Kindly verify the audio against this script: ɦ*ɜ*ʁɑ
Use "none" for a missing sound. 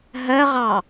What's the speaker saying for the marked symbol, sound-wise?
ɜ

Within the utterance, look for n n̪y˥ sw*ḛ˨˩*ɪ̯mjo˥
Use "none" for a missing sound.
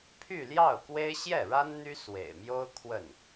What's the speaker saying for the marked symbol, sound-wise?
ḛ˨˩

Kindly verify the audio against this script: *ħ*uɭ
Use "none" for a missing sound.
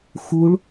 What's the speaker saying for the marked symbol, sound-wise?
x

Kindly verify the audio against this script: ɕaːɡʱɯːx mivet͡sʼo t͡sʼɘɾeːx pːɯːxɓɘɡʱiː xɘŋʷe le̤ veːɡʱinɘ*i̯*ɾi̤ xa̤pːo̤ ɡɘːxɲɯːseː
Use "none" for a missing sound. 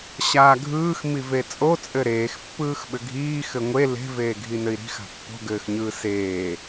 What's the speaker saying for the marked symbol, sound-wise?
i̯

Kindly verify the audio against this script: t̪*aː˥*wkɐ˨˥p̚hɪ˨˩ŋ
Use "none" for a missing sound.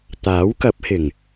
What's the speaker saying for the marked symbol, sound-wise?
aː˨˥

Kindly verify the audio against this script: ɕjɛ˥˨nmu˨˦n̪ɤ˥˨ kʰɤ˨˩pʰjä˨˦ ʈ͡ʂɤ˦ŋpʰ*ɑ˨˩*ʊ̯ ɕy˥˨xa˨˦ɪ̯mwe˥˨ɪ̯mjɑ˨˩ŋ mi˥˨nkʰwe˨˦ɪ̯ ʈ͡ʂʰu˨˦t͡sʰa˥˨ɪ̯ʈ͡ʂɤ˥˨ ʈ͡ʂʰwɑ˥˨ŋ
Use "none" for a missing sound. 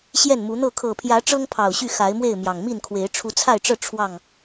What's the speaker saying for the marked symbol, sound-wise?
ɑ˨˩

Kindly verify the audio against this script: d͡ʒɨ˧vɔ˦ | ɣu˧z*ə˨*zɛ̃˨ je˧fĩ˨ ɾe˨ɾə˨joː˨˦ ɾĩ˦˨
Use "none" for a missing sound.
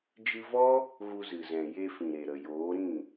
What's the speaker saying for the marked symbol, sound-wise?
ɨ˨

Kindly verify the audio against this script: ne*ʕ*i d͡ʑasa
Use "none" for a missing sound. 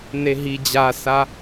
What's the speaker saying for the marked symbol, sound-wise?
ɦ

